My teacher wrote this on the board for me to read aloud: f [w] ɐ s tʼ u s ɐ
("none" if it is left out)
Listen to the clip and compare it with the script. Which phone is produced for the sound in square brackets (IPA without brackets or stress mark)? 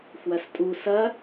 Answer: w